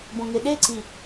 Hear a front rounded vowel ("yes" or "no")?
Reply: no